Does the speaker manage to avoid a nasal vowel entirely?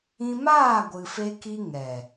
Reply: no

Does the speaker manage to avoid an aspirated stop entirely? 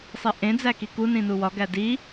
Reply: yes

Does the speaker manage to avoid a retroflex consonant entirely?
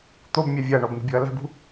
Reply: no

